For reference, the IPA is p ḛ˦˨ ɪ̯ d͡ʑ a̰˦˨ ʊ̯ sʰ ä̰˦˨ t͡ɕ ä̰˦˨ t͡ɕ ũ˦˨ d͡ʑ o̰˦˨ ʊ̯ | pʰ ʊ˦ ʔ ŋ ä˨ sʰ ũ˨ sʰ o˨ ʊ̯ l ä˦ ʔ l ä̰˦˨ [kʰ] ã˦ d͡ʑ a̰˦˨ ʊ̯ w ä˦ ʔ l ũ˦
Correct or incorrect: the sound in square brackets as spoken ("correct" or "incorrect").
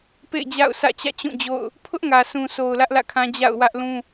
correct